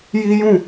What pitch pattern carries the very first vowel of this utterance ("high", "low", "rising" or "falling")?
high